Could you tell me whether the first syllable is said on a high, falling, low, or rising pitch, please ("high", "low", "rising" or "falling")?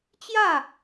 falling